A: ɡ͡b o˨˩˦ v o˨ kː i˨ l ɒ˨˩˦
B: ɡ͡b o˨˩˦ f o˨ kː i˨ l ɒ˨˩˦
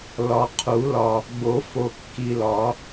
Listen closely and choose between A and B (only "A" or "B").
B